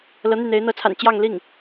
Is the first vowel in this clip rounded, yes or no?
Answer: no